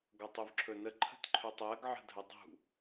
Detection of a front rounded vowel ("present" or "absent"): absent